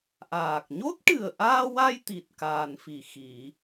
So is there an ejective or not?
no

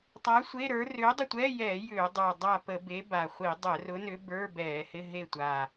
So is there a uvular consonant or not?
yes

